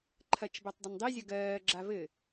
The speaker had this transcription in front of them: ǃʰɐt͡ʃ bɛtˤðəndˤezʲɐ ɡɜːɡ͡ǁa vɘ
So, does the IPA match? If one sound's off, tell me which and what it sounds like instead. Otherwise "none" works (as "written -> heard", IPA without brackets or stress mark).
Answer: ð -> dˤ